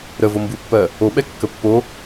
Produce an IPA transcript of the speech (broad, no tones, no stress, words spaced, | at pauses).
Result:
ɾə vombupːɜ | oɓɛ kːəpːo